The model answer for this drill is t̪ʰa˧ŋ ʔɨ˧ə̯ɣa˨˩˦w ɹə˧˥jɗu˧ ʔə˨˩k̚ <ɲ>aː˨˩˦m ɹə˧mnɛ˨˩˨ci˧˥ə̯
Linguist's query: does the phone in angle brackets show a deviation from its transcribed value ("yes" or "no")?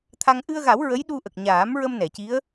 no